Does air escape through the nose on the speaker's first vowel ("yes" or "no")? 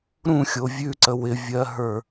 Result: yes